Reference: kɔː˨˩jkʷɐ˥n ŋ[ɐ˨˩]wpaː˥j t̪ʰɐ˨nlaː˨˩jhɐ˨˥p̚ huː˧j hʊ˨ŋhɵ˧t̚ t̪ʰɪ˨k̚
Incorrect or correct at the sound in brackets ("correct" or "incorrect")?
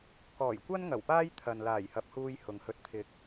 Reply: correct